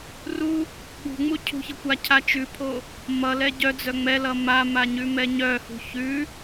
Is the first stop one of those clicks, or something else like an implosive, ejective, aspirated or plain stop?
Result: implosive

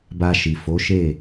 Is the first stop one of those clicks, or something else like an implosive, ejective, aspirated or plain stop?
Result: plain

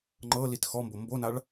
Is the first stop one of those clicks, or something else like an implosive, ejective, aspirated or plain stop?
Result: click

